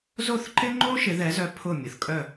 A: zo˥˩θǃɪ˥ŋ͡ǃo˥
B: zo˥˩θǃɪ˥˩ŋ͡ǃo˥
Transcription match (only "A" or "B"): A